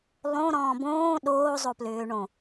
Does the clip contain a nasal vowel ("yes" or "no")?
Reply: yes